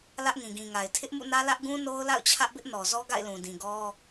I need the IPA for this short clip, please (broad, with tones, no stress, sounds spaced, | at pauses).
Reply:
l ä˦ ʔ ŋ ĩ˨ ɡ ĩ˨ ŋ a˨ ɪ̯ tʰ ɪ˦ ʔ m ṵ˦˨ n ä˦ l ä˦ ʔ ɡ ũ˦ n o˦ ʊ̯ l a̰˦˨ ʊ̯ t͡ɕʰ ä˦ ʔ b ɪ˦ ʔ n ɔ˨ z ɔ˦ ɡ a̰˦˨ ɪ̯ l ũ˨ d ĩ˨ ɡ ɔ˦